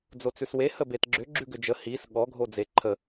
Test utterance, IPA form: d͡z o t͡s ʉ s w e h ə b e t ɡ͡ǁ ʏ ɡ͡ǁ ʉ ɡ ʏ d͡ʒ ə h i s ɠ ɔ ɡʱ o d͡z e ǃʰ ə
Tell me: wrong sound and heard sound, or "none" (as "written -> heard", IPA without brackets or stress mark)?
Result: none